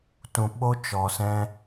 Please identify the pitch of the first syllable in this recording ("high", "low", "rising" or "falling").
low